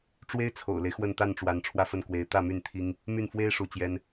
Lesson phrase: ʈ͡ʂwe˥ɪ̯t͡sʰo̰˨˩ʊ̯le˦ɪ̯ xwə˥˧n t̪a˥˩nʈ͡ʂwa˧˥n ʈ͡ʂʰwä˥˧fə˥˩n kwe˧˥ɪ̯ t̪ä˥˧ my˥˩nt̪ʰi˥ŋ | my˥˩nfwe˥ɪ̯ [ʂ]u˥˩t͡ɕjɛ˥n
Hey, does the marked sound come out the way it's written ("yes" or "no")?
yes